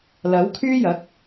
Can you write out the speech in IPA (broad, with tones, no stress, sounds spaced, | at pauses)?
l ɐ˨˥ w kʰ yː˥ j ɐ˨˥ k̚